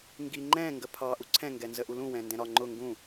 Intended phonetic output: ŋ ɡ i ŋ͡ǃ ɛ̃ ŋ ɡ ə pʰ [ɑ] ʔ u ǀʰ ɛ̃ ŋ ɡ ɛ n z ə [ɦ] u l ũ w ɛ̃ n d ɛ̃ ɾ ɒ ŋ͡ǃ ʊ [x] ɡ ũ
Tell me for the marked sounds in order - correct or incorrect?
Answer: correct, incorrect: ʔ, incorrect: ŋ

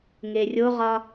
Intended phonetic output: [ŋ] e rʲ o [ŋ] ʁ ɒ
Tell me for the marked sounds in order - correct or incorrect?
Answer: correct, incorrect: none

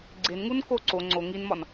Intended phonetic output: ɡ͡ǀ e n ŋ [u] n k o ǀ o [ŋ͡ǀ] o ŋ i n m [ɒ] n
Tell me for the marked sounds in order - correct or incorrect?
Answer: correct, correct, correct

